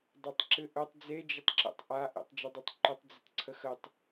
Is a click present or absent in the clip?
present